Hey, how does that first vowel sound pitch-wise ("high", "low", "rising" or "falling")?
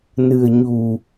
low